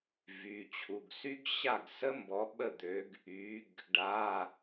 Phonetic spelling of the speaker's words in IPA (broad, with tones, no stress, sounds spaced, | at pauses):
v y˩˧˩ t͡ɕʰ u˩˧˩ ɡ s y˦˥ ɡ ɕ a˥˩ ɡ s ə˦˥ m b ɔ˩˥ ɓ ə˥˩ d̪ ø˩˥ ɡ | y˩˥ ɡ | ɖ a˩˧˩